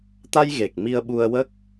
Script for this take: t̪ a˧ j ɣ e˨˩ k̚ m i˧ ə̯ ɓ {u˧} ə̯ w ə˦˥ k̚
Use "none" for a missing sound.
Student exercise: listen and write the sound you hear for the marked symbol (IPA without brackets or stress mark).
u˧